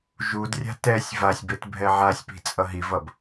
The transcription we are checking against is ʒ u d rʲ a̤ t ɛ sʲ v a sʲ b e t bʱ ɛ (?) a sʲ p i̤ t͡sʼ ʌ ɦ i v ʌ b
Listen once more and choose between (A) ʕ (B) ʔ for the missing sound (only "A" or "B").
A